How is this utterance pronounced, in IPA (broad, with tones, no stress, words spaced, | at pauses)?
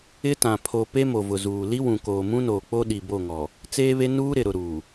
ɪ˦tã˨ pʰo˨ pe˦mo˨vʊ˨ zuː˨ li˦wũ˨koː˨ mũ˦noː˨k͡po˦ ɗi˨bo˦˨ŋɔ˨ | t͡seː˦βe˦ nuː˦ ɾɪ˨ ɾʊ˨ɾuː˨